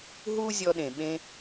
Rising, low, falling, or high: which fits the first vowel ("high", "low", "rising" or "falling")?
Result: high